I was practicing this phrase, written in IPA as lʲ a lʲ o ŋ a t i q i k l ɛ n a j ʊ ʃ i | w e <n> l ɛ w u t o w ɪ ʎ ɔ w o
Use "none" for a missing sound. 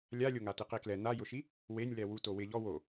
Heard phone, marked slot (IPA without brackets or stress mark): nʲ